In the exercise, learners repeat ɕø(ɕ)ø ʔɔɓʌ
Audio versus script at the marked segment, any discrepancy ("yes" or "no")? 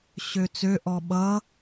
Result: yes